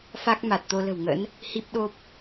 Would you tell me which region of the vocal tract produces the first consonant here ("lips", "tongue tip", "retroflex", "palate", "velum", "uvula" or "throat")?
lips